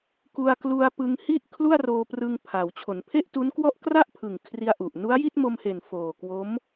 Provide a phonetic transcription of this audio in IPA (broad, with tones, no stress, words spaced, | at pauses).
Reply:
ku˧a̯klu˧a̯ pɯ˧ŋhi˥˩ʔ kʰlu˥˩a̯roː˧prɯ˧ŋ pʰa˩˦w t͡ɕʰo˩˦npʰe˥˩ʔtu˦˥nkwɔ˥˩ʔ kra˥˩ʔpʰɯ˨˩ŋ kʰri˧a̯ʔu˨˩ʔ nu˦˥a̯ji˥˩t̚mo˧mhe˨˩n foː˨˩kwo˦˥m